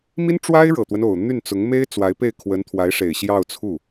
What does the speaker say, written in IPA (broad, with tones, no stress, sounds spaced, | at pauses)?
m i˥ n ʈ͡ʂ w a˥ ɪ̯ ɻ ɤ˨˩ t̪ w ə˦ n o˨˩ ʊ̯ n̪ y˥˩ n t͡s ʊ˧˥ ŋ m e˥ ɪ̯ t͡s w a˧˥ ɪ̯ p e˥˩ ɪ̯ kʰ w ə˧˥ n t̪ʰ w a˧˥ ɪ̯ ʂ e˨˩ ɪ̯ ɕ j ɑ˥˧ ʊ̯ t͡sʰ u˥˩